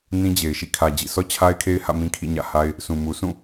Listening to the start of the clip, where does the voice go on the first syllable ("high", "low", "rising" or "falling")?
high